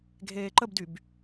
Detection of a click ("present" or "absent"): present